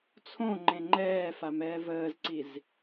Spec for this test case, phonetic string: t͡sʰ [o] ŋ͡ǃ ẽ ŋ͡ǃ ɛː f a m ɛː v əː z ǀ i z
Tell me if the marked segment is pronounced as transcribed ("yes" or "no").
no